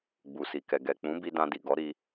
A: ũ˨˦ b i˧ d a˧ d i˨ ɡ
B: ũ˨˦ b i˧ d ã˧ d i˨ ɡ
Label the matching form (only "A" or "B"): B